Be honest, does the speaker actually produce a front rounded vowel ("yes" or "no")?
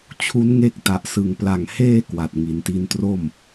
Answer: no